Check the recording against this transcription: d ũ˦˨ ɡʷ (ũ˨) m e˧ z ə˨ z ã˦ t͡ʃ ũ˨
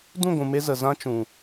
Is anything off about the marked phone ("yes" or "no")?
no